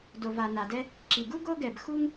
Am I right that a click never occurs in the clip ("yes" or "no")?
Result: no